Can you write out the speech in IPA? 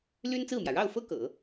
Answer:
l y˥ n t͡s ɹ̩˥˩ m j ä˩ ɻ ɑ˥˩ ʊ̯ f ɤ˥ k ɤ̰˨˩˦

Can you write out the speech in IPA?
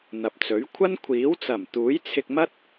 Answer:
n̪ ɐ˨ p̚ t͡s ɵ˨˥ ɥ kʷʰ ɐ˥ n kʷʰ iː˨˥ w t͡s ɐ˨˩ m t̪ uː˨˥ j t͡sʰ ɪ˧ k̚ m ɐ˥ t̚

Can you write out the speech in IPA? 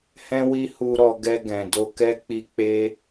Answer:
h ɛ̃˧ w i˧ h u˧ ɾ ɔ˧ ɡ ɛ˧ ɡ ɛ̃˨ d o˧ k ɛ˦ k͡p i˧ k͡p e˦

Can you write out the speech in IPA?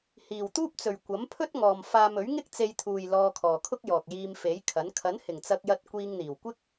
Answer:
h iː˨ w t̪ uː˥ p̚ t͡s ɵ˨ ɥ kʷ ɐ˨˥ m pʰ ɵ˥ t̚ ŋ ɔː˨ m f aː˧ m ɵ˨˥ ɥ ŋ ɪ˥ k̚ t͡s e˧ j t̪ʰ uː˨ j l ɔː˧ kʰ ɔː˨ kʰ ʊ˥ k̚ j ɔː˨ k̚ j iː˧ m f e˨˥ j kʰ ɐ˨˥ n kʰ ɐ˨˥ n h ɪ˨˩ ŋ t͡s ɐ˧ k̚ j ɐ˧ t̚ kʷ iː˧ ŋ n̪ iː˨˩ w kʷ ɪ˥ k̚

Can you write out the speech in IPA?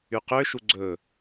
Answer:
y q ø ʃ u ɡ͡ǀ ɵ

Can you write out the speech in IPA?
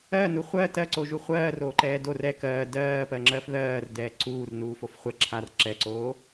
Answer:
ɜ n u χʷ ɜ t ɜ ǀ o ʒ u χʷ ɜː r oː ǃ ɛː d o r ɛ k ɜː d ɜː p ɜ ŋ͡ǁ ɜ f ð ɜː r d ɛː ǀ uː r n uː f o f χʷ ɛ ǁʰ a r ǁ ɛ ǀ oː

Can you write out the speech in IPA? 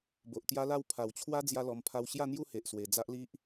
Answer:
b o˨ ʔ t̪ j a˦ l a˥˧ w pʰ a˨˩ w t͡ɕʰ w a˦ d͡z j a˦ l ɔ˧ m pʰ a˧ w ɕ j a˥˧ n̪ j u˥˧ h e˨ ʔ s w e˨˩ d͡z a˦ ʔ l i˦ ʔ

